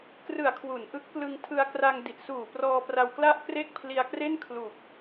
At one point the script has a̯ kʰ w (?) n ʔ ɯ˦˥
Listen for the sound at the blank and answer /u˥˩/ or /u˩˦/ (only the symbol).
u˩˦